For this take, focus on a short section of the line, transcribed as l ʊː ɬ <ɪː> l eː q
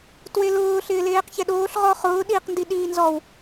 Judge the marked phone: correct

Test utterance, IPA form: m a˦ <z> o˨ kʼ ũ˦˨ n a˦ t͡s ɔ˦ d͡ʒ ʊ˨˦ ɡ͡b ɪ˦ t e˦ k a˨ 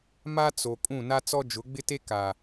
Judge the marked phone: incorrect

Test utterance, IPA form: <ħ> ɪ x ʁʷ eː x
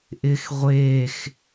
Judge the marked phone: incorrect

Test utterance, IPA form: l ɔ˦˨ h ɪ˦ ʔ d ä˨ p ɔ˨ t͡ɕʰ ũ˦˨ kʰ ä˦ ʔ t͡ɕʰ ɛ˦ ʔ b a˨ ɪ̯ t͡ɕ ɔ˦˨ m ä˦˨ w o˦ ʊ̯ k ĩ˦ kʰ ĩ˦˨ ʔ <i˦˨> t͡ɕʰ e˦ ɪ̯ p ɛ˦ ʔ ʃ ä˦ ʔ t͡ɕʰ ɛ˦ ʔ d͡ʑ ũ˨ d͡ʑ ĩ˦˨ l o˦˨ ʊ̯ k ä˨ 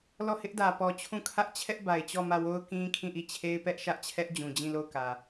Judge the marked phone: correct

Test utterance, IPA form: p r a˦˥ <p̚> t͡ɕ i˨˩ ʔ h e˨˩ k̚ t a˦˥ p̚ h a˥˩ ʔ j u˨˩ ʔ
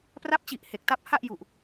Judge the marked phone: correct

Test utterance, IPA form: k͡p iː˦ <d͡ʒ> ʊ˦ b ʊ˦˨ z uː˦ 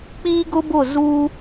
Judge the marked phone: incorrect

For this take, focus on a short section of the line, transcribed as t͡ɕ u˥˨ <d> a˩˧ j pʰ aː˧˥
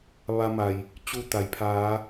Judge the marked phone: incorrect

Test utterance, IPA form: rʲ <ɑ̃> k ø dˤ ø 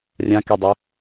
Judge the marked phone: incorrect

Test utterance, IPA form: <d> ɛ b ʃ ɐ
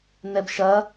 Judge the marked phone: incorrect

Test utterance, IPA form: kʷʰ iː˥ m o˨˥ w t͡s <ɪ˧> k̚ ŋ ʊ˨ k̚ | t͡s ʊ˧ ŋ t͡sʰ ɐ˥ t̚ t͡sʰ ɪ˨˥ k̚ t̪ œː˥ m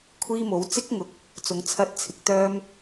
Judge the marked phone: incorrect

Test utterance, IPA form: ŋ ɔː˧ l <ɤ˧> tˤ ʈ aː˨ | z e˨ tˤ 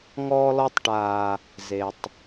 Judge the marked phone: incorrect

